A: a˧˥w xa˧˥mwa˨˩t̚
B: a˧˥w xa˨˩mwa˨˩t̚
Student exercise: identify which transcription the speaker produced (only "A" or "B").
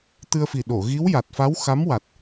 A